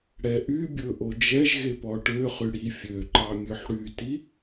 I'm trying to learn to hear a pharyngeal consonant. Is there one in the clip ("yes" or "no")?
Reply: yes